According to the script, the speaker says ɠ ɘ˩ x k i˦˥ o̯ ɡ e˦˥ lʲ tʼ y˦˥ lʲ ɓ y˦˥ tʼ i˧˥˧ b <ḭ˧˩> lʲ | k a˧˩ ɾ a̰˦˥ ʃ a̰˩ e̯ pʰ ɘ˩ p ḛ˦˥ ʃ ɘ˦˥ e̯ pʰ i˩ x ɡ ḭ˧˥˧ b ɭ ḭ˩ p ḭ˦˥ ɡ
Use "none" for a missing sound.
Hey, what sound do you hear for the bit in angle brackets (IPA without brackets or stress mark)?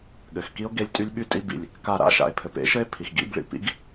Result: ḭ˧˩